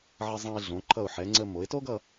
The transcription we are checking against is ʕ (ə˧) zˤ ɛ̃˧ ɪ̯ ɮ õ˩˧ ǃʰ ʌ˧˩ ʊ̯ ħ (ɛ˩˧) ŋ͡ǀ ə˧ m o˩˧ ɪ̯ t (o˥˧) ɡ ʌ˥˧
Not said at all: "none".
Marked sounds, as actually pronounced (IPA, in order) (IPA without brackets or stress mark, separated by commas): ə˧, ɛ˩˧, o˥